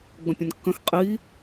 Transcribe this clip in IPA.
ɡ͡b ə̃ pʲ ə̃ n kː ə̃ x qʼ i

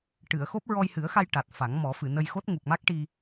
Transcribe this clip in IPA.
ʈ ɨ˨˩˨ ə̯ x o˦˥ p̚ ɹ ɔ˧ j h ɨ˨˩˦ ə̯ x a˧ j ʈ a˨˩ t̚ f a˨˩˦ ŋ m ɔ˨˩˦ f ɨ˨˩˨ n ə˧ j x o˦˥ t̚ ŋ u˨˩ k̚ m a˦˥ k̚ ʈ i˧

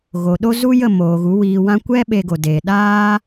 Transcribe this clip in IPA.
ɣ o˨ ɗ o˦ z u˦ j ə˦˨ m oː˨ ɣ u˨˦ w iː˨ w ã˧ kʷ ɛ˦ ɓ e˧ ɡ o˨ d eː˨ ɗ aː˦

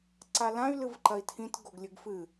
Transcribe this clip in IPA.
ǀ a l ã y̯ l ɨ v ǃ ɐ i̯ tʰ ĩ t ɡ o ɡ lʲ ɨ ɡ f ɨ

